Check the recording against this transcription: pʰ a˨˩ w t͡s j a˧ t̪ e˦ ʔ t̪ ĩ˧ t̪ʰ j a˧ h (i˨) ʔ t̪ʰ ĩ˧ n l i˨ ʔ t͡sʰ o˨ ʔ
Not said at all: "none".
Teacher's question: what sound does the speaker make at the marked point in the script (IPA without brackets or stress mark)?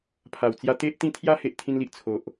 e˨